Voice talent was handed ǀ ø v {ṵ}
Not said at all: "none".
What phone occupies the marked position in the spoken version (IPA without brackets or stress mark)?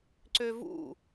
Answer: ṵ